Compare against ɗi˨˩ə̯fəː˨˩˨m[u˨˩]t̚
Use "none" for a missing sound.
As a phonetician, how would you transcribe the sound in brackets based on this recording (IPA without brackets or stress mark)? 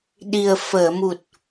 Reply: u˨˩